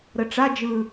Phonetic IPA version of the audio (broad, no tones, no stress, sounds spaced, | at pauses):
ɾ ə ʈ͡ʂ a d͡ʒ ɯ